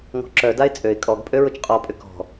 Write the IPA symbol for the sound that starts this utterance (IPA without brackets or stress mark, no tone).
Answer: ŋ